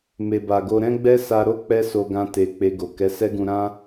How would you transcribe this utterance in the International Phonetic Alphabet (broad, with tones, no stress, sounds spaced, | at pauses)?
m e˨ b a˨ ɡ o˧ ɾ ɛ̃˦ ɡ͡b ɛ˦ s a˧ ɾ o˦ k͡p ɛ˦ s o˧ ɡ ã˧ t e˨ k͡p e˧ ɡ o˨ k ɛ˨˦ s ɛ˦ ɡ ũ˧ ɾ ã˦